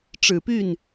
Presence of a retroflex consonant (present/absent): present